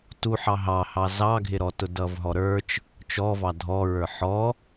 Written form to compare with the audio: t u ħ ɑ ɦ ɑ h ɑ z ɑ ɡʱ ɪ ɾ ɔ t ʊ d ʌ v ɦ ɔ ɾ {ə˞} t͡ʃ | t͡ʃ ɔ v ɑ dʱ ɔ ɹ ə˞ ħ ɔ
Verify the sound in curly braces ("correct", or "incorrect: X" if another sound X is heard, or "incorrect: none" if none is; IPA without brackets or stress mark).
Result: correct